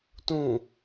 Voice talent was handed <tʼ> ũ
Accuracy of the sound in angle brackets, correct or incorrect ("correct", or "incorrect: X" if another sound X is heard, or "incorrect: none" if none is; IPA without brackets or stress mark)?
incorrect: t